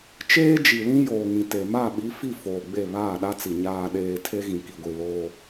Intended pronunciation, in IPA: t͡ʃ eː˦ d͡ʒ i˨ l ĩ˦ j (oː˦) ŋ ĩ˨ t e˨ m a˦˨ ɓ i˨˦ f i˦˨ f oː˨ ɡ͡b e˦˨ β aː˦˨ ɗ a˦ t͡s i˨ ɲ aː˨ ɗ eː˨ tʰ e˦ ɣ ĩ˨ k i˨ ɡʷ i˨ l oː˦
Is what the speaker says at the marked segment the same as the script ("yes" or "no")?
no